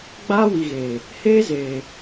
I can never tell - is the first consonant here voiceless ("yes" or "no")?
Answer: no